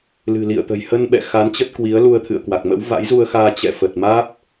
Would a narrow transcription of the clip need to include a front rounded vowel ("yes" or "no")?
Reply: no